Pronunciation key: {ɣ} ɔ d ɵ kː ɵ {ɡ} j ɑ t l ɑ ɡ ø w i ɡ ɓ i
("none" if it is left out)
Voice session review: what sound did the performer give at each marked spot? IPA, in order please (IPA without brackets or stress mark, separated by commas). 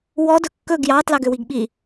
w, ɡ